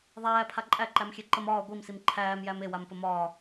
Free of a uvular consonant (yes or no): yes